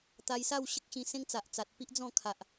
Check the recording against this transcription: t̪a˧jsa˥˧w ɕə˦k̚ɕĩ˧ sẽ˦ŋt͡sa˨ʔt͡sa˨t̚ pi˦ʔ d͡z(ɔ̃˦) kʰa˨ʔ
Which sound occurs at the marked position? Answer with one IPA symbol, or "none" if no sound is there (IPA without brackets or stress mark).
ɔ̃˥˧